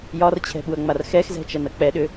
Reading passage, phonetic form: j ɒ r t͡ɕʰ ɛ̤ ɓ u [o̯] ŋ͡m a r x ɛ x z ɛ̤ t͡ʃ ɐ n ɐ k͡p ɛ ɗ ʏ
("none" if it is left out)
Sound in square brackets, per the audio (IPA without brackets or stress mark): ɐ̯